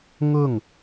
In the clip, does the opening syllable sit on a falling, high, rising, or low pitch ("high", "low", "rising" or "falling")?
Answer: falling